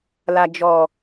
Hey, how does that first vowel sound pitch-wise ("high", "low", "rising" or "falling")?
low